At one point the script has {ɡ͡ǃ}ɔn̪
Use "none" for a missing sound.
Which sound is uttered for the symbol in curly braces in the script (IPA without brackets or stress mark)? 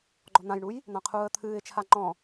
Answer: ɡ͡ǃ